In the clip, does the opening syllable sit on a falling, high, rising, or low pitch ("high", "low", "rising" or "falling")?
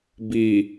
low